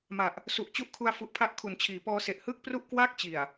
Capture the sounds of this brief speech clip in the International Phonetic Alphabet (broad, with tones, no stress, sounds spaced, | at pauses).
m a˨˩ ʔ | s u˨˩ ʔ t͡ɕ u˦˥ ʔ kʰ u˧ a̯ f u˨˩ ʔ pʰ a˦˥ ʔ kʰ u˩˦ n t͡ɕʰ iː˩˦ p ɔː˧ s e˨˩ ʔ h ɯː˥˩ k̚ p r u˥˩ ʔ k w aː˥˩ k̚ t͡ɕ i˨˩ a̯